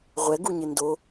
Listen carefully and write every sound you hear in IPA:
ʁʷ ɛ ɡ u ɲ ɪ n d o

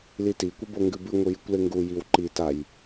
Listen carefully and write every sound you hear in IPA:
l i t i kʷ e b o ŋ ɡ ɨ b ɨ ŋʷ ɨ j ɨ kʷ l e ŋ ɡ u j i w ǃ i t a j

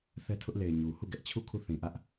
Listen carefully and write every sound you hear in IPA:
θ ɛ˦ tʰ ʊ˦ ʔ l e˨ ɪ̯ ɲ u˨ h u˦˨ ɡ ɛ˦ ʔ t͡ɕʰ u˦˨ kʰ u˦˨ θ ĩ˨ ʔ ä˦ ʔ

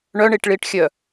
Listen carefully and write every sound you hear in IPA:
ɳ œ ɳ i ʈ ɭ i ʈ xʲ œ

